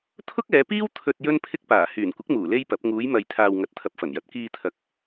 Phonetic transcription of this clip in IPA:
t̪ʰ ʊ˥ k̚ ɛː˨˧ p iː˥ w t̪ʰ ɵ˧ t̚ j ɵ˥ n pʰ ɪ˥ k̚ p aː˨˩ h yː˨˩ n kʷ ɪ˨˥ k̚ m uː˨˩ l e˥ j p ɐ˨˥ p̚ ŋ uː˨˧ j m ɐ˨ j t̪ʰ aː˨ w ŋ ɐ˨˥ t̚ t̪ʰ ɐ˨ p̚ f ɐ˨˩ n j ɐ˨ t̚ k iː˧ t̪ʰ ɐ˨ k̚

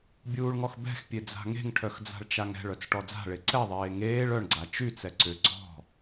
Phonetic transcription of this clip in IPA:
bʲ uː ɭ ŋ ɔ x b ɛ̤ x pʲ e d͡z a̤ ŋ e̤ ŋ ʈʰ œ x d͡z a̤ ɭ t͡ʃ a ŋ ɛ̤ ɭ œ t͡s ʈ ɔ d͡z a̤ ɭ e ǀ ɛ ðˤ eː ŋ eː ɭ œ ɳ ɡ͡ǀ a t͡ʃ y t͡s ɛ ǀ ʏ ɡ͡ǀ ɔ̤

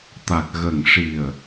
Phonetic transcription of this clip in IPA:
t̪ a˨˩ k̚ ɣ ə˨˩ ŋ ʂ i˨˩ ə̯

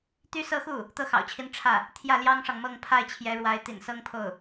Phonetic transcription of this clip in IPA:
t̪ y˥˧ s ɤ˥˧ x u˥˩ | t̪ ɤ˥˩ x ɑ̰˨˩ ʊ̯ t͡ɕʰ i˧˥ n ʈ͡ʂʰ ä˥˩ | t̪ʰ j ä˥˩ l j ɑ˥ ŋ ʂ ɑ˨ ŋ m ɤ˥˧ ŋ pʰ a˥˩ ɪ̯ t͡ɕʰ j ɛ˧˥ ɻ w a˧˥ ɪ̯ t̪ ḭ˨˩ n s ɤ˥ ŋ pʰ o˥˩ ʊ̯

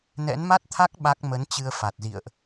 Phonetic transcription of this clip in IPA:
n ɛ̰˧˥ n m a˦˥ t̚ t̪ʰ a˦˥ k̚ ɓ a˦˥ k̚ m ə˨˦ n t͡ɕ ɨ˧ ə̯ f a˨˩ t̚ z ḭ˧˨ ə̯ ʔ

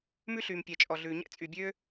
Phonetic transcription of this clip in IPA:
m ʉ˥ ɬ yː˩ m pʲ ɛ˩ t͡ʃʼ ɔ˩ ɮ ʉː˩ ɲ ɛ̰˥ t͡sʼ y˩ bʲ ø˥

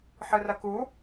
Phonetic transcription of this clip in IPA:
ħ ɨ r ɐ k u

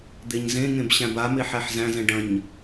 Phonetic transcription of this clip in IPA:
d̪ e ɲ z ẽ ŋ ẽ b ɕ æ̃ b a m e ħ æ ħ z æ̃ z ɛ̃ ɖ ɐ̃ ɲ

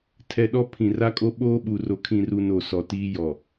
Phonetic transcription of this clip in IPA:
tʰ ɛ˨ ɗ ɔ˦ pʰ ĩ˨ r a˦ kʼ o˦ ɓ oː˦ ɓ u˨ r o˨ kʰ ĩ˨ r u˨ n o˨ s ɔ˨ t iː˦ j ɔ˨

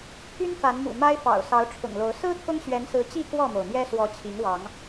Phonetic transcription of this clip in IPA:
t̪ʰ y˦ n f a˨˦ n m ṵ˨˩ m a˦ ɪ̯ f ɑ̰˨˩ ʊ̯ s ɑ˨˦ ʊ̯ ʈ͡ʂʰ ʊ̰˨˩ ŋ l o˨˦ ʊ̯ s ɹ̩˦ t̪ʰ ʊ˦ ŋ ɕ ɥ ɛ˨˦ n s ɹ̩˨˦ t͡ɕ i˥˨ k w ɔ˥˨ m o˩ ʊ̯ m j ɛ˦ s w ɔ˨˦ t͡ɕʰ i˨˦ ŋ w ɑ˨˦ ŋ

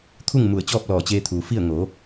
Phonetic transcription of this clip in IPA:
t̪ʰ u˥˨ ŋ m u˧˩ ə̯ t͡ɕ ɔː˥˨ p̚ l ɔː˧˩ t͡ɕ eː˧ t̪ʰ uː˩ f i˥˨ ə̯ ŋ o˩˧

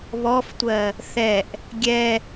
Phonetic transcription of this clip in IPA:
β ɔ f tʷ ɜ | θ ɛ ʔ | ɡʲ ɛ

